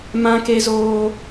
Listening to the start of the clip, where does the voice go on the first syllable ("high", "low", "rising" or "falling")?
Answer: high